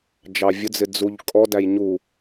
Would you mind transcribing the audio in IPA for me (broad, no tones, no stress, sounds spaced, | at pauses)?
d͡ʒ ɑ vʲ ʊ d͡z ɪ d͡z u ʎ kʼ ɔ d æ j ɲ u